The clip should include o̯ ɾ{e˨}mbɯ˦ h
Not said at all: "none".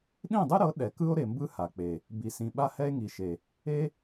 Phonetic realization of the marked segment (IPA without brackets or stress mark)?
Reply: e˨